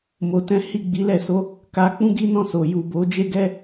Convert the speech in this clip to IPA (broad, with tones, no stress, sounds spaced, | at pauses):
m o˨ t ɛ̃˨˦ h i˦˨ ɡ͡b i˨˦ l ɛ˦˨ s o˧ | k a˧ k͡p ũ˦ ɡ i˦ n ɔ̃˦˨ s o˨ j u˨ b o˨˦ d͡ʒ e˦ ɡ ɛ˦